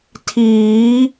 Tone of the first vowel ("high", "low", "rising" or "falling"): rising